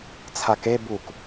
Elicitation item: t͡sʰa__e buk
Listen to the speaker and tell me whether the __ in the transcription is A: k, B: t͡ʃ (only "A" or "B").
A